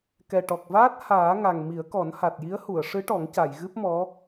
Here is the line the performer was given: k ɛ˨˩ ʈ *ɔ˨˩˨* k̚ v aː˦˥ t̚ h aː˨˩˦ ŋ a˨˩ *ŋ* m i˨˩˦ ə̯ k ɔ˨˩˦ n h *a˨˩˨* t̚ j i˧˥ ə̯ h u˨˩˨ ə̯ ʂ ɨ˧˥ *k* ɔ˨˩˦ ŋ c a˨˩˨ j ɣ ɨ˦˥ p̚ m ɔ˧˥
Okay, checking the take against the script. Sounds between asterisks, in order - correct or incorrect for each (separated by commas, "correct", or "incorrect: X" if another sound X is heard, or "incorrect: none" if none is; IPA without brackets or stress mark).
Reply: incorrect: ɔ˨˩, correct, incorrect: a˨˩, incorrect: ʈ